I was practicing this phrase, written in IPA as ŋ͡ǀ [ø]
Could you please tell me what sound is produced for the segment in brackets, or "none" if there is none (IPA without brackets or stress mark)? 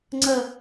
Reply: ə